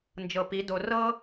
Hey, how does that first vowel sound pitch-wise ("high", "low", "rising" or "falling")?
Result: low